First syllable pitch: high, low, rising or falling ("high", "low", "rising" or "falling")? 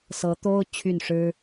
rising